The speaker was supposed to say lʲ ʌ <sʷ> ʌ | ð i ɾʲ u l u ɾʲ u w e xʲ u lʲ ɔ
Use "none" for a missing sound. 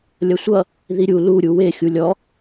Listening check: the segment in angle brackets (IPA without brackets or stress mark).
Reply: sʷ